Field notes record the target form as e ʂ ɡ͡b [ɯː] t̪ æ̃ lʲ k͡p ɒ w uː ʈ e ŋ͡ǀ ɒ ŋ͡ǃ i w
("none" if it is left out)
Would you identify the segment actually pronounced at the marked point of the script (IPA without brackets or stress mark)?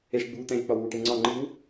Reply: uː